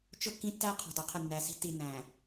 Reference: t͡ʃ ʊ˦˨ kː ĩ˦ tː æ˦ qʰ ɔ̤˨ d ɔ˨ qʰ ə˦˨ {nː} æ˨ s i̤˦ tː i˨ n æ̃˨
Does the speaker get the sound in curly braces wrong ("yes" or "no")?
no